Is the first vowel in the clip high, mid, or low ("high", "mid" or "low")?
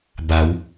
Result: low